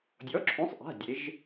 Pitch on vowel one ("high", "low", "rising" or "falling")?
rising